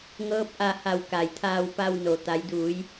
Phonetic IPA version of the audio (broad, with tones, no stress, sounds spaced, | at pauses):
ŋ ɤː˧˥ p̚ ʔ a˧ h a˧˩ w k a˩ j t̪ʰ aː˧ w p a˧ w n o˩ t̪ a˩˧ j d uː˩˧ j